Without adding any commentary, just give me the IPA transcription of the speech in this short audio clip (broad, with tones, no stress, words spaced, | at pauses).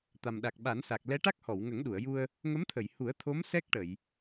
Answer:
t̪a˨˩mɗa˨˩k̚ɓa˨˩˦nsa˨˩k̚ lɛ˧˥ʈa˦˥k̚hɔ˨˩˨w ŋə˨˩˦ŋɗu˨˩˨ə̯ju˧ə̯ | ŋə˧˥mt̪ʰə˨˩˨j hu˨˩˦ə̯t̪ʰo˧˥m sɛ˦˥k̚ʈə˨˩˨j